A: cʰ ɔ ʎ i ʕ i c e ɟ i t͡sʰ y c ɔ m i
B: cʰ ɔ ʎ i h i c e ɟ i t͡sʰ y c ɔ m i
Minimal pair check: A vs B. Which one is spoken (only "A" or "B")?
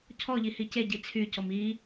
B